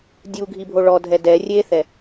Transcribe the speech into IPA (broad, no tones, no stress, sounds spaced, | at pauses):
dʲ u ɡʱ i bʱ o ɭ ɔ dʱ ɛ d ɛ rʲ e θ ɛ